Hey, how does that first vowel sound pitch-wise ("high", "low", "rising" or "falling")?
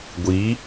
rising